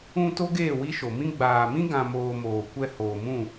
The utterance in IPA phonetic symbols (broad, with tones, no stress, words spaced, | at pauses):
ũ˧ to˦ɡeː˦˨ wi˦ʃo˨ mĩ˧ɡ͡baː˨mĩ˦ ɡã˧moː˧moː˨ kʷɛ˧ hoː˨mũ˦˨